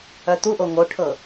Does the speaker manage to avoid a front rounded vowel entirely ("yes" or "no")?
no